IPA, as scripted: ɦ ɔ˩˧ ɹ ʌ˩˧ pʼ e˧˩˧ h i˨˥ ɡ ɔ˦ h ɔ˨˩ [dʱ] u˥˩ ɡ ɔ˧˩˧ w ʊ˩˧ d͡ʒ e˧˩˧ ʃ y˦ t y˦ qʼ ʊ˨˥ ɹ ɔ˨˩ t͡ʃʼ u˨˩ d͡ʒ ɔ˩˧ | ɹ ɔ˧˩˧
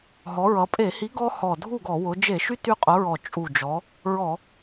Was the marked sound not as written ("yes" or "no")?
no